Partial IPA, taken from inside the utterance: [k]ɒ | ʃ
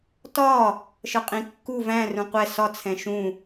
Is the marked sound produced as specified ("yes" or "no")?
no